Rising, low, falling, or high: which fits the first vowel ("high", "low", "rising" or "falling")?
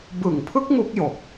low